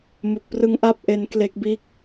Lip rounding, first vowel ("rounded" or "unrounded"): rounded